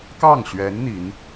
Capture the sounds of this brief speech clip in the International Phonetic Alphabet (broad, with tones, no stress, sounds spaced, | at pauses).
k ɑ˥˩ ŋ ɕ ɥ ɛ˧˥ n n̪ i˧˥ n